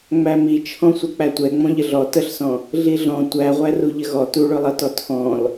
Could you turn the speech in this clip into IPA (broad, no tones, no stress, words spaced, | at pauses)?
ŋ͡mæmit͡ʃʰɔ̃sʷʌ k͡pætʷɛ ŋ͡mɔ̃ʎəɮɔ təɬsɔ̃ | ɮiɮɔ̃ tʷæʁʷæru ʎəɣɔ tuɭʊlˠʌtɔ tʰɔ̃l